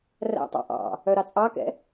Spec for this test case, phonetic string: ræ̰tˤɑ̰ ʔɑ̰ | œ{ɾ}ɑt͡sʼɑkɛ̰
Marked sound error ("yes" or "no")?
no